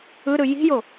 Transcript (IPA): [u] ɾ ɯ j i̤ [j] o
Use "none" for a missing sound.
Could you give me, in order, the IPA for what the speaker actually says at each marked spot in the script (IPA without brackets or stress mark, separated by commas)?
ɯ, j